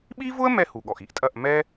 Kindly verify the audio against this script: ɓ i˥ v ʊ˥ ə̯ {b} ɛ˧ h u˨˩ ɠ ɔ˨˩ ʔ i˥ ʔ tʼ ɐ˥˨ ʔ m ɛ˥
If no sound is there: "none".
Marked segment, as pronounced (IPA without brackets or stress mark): m